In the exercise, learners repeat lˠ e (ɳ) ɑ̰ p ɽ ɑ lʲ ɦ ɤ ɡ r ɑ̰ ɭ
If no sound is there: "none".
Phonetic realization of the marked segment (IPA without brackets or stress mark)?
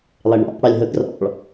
ɳ